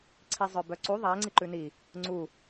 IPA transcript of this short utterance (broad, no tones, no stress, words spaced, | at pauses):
ǀʰizˤœbœǀu ðˤæŋ͡ǀiǃʉ ni | ŋ͡ǀu